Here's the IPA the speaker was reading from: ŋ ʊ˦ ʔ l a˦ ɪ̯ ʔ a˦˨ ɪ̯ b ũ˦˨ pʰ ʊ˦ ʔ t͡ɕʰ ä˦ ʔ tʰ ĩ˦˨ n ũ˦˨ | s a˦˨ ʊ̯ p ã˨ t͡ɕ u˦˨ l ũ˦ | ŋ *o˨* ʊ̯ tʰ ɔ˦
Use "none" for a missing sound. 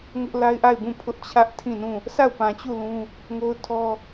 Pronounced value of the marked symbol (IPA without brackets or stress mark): o˦